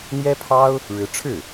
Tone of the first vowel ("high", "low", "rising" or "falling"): high